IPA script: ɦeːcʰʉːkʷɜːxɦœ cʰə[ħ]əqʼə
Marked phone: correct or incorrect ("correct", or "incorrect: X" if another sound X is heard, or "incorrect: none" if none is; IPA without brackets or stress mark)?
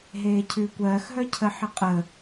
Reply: correct